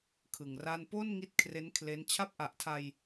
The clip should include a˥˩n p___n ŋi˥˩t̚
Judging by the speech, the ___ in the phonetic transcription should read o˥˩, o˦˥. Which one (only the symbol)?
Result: o˥˩